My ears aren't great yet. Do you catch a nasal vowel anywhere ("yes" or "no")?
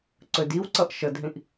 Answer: yes